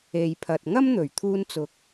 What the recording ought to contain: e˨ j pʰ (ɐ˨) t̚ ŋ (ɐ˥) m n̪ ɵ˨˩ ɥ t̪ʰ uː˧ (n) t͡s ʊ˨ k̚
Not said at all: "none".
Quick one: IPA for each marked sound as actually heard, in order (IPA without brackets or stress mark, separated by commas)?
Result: ɐ˨, ɐ˥, n